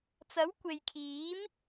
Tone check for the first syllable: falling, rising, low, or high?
rising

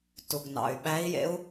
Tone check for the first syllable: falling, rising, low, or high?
low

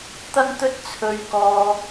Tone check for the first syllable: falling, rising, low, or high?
high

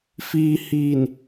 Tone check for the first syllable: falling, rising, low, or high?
low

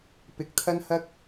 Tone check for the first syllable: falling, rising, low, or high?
rising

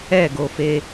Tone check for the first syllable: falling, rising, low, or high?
falling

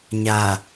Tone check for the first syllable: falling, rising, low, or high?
low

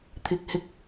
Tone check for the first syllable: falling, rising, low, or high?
low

